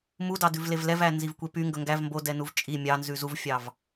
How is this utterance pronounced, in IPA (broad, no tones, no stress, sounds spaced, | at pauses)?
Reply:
m u d ɑ d ʉ v l e v l ɛ v æ n z i v kʷ e p y ŋ ɡ ɵ ŋ ɡ æ v m b o d ɛ n u v t͡ʃʼ i mʲ ɑ n z ʉ z u v fʲ ɑ v